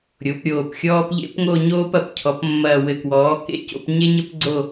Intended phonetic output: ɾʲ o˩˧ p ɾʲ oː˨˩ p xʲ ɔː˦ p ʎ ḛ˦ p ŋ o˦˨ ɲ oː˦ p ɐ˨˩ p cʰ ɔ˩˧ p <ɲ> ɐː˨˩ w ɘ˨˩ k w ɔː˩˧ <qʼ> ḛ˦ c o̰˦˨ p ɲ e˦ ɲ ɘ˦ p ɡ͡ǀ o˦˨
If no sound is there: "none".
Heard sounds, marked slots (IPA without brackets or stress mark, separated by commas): mː, k